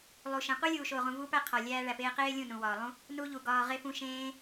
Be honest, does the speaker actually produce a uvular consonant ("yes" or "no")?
yes